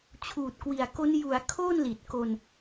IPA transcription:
t͡ɕʰuː˨˩t̚kwi˨˩a̯ko˦˥n ju˩˦a̯ kʰo˥˩nli˨˩t̚ ko˧n

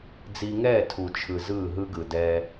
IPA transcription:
d͡zi˧ ŋɛː˦˨tʰu˨t͡ʃʰɯ˨ zɯː˦˨ɦɯ˦ɡɯ˨ dɛː˧

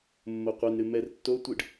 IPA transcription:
mːoqʷenɾɨ mɛrtːotʷɨɖ

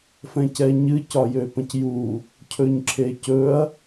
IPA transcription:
fɛ̃cɛɲɨ cɒjøpə̃cju | cʰɵɲǁʰecɵɐ̯

